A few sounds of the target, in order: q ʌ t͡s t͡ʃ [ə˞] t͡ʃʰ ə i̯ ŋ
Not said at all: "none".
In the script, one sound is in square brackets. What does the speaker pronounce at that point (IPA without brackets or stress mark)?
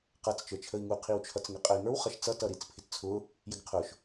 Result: ə˞